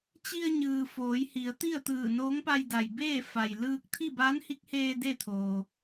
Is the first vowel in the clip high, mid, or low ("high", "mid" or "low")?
high